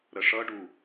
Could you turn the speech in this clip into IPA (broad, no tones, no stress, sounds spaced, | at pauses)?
ɾ ə ʂ ʌ ɖ u